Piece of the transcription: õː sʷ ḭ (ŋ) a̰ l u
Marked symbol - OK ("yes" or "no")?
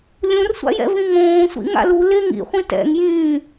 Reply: yes